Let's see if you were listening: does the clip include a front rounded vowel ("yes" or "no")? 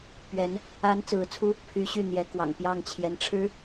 yes